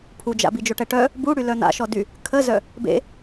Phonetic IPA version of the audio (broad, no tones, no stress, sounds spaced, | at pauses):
pʰ u d͡ʒ a̰ b i d͡ʒ o ʈ ɛ ʈ œ | b u ɽ y l œ n̪ a̰ ʃ ɔ d y | kʰ ə z œ | b ḛ